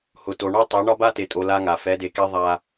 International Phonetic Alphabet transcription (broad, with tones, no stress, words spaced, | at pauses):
hʊ˨to˨ɳɔ˦tˤe˨˦ ɳɒ˦ba˦te˨tʼo˨ la˦ŋa˨ fɛ˨˦de˨ke˦ ðˤa˦